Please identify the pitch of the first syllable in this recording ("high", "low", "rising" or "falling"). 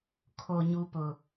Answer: low